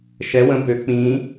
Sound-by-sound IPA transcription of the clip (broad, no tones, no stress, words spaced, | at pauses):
ʃɛ wə̃ bø k͡pĩ